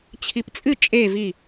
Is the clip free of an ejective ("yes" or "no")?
no